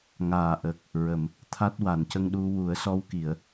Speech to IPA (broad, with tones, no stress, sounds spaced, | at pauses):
ŋ aː˨˩ ʔ ə˨˩ k̚ | ɹ ə˨˩˨ m | t̪ʰ a˦˥ t̚ w a˨˩˨ n c ə˧ ŋ ɗ u˧ w u˨˩˦ ə̯ s ɔ˧ w k i˨˩˨ ə̯